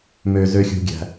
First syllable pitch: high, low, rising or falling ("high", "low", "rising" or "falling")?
low